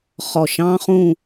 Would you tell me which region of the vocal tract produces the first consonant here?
uvula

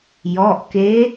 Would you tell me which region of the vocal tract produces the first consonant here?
palate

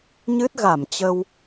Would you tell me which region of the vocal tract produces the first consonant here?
palate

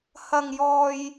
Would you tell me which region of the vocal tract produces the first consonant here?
throat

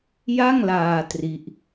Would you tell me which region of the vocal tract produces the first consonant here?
palate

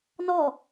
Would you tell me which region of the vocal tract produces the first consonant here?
tongue tip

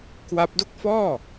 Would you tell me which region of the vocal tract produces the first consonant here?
velum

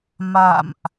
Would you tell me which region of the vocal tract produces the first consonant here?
lips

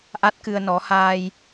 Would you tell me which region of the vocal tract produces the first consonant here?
throat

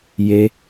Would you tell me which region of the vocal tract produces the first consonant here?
palate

